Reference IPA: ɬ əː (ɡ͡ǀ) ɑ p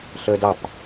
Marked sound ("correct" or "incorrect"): incorrect